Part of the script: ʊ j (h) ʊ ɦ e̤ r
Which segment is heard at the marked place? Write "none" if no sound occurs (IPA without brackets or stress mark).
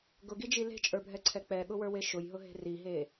ɦ